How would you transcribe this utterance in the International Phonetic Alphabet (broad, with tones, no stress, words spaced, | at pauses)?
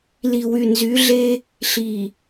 li˨wy˨nzy˨˦ɮe˦ | ɬi˨